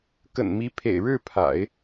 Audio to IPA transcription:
k ə̰˨˩ n m i˧˥ pʰ ḛ˨˩ ɪ̯ ɻ ɻ̩˥˩ pʰ a̰˨˩˦ ɪ̯

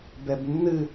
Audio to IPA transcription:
b ɛ b nː ɨ

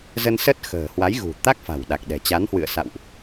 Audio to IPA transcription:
z ə˧ n s ə˦˥ t̚ x ə̤ː˨˩ h w a˨˦ j ɣ ṳ˨˩ t̪ a˦˥ k̚ f a̤˨˩ w ɗ a˨˩ k̚ ɗ ɛ̤˨˩ t͡ɕ a˨˦ n h w ɨ̰˧˨ ə̯ s a̰˧˨ w ʔ

